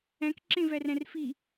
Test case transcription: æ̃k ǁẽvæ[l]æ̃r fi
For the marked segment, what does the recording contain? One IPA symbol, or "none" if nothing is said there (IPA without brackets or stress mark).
r